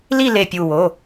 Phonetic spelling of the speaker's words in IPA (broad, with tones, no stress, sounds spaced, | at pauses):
l i˥˧ l e˧˩ pʲ u˧˩ w o˩˧˩